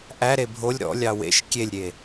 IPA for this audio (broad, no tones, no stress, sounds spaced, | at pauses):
ʔ æ ɾ e bʱ o lʲ ɾ ɔ̰ lʲ ɑ w ḛ ʃ kʲ e lʲ ɾʲ e